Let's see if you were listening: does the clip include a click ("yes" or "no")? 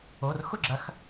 yes